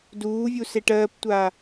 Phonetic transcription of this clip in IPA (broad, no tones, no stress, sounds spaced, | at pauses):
d uː vʲ u s e ʈ ɜː p tʷ aː